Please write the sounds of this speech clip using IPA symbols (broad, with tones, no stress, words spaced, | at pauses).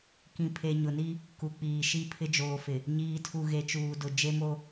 kĩ˨pʰe˨ ɲʊ˨ni˦ | ku˨k͡piː˨ʃi˦˨ pʰɪ˦d͡ʒoː˨fɪ˨ | ɲiː˨tʰu˨ ɣe˨t͡ʃuː˨dʊ˨ d͡ʒe˦mo˦